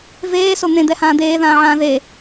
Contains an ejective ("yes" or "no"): no